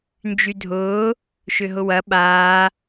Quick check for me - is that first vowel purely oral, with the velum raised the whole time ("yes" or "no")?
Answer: yes